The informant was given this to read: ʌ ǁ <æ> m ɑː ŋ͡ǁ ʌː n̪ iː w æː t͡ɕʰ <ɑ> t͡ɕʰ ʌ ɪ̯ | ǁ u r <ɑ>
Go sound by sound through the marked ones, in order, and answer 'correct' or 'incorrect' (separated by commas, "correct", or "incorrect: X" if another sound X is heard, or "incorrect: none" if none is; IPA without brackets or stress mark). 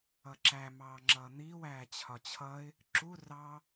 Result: correct, incorrect: ɒ, correct